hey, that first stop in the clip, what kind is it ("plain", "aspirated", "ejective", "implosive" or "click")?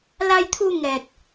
aspirated